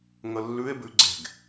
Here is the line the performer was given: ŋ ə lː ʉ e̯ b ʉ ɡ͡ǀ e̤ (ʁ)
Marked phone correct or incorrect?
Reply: incorrect